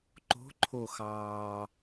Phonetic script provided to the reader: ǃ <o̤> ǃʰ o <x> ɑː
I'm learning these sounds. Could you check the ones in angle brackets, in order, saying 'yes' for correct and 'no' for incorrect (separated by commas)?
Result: yes, yes